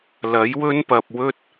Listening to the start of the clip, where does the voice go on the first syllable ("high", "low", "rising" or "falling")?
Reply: rising